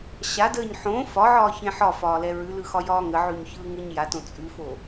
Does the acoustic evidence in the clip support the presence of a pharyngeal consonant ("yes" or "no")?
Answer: yes